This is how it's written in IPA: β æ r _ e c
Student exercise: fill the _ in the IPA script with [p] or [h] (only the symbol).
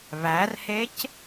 h